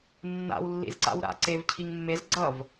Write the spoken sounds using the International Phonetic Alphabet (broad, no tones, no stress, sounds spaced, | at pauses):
nː a̰ w lː ḭ z ǀ a̰ w ɾ a̰ ǀ e v cʰ i ŋ mː e z ɡ͡ǀ ʌ v